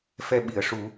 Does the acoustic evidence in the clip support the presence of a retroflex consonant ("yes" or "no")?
yes